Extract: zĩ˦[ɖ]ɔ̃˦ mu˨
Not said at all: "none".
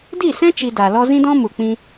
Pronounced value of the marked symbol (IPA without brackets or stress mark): d